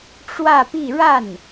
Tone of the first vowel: falling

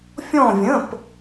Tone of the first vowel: falling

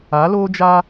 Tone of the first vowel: rising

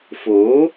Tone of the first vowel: rising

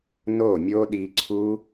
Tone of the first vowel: falling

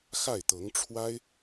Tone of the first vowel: falling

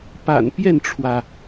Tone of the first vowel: low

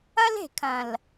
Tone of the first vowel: high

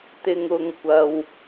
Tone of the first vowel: low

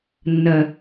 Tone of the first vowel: low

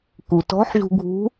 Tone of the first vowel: low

